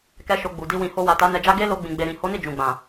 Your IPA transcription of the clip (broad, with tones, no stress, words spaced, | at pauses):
kɛ˧ ʃo˧ɡ͡bu˨ di˧wĩ˨ho˧wa˨ ta˨˦nɛ˧d͡ʒa˦ ɡe˦ lo˧ɡ͡bĩ˨ɡ͡be˨ɾĩ˨ ho˨˦ni˦˨ d͡ʒũ˨ɡ͡bã˨